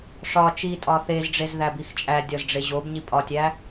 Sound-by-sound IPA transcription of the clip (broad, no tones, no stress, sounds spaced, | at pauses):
ʂ ɒ t͡ʃ i tʼ ɒ θ e z ɖ͡ʐ e z ð æ b i x t͡ʃʼ æ dʲ ɒ z ɖ͡ʐ e ʑ o b ɲ i pʼ ɒ tʲ æ